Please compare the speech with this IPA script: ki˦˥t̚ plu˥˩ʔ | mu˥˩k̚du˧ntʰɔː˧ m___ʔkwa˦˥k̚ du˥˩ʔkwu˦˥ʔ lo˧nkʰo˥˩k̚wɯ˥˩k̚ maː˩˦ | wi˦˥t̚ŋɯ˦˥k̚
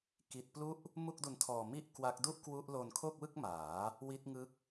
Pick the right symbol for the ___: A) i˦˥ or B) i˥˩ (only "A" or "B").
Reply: B